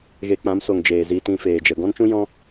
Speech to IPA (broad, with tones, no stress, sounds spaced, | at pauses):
ɣ e˧ k͡p ã˨˦ m s o˨ ŋ d͡ʒ eː˨ z i˧ t ĩ˧ f eː˨ d͡ʒ ə˨ ɡ ɔ̃˦ n t͡ʃ ũ˦ j ɔ̃˦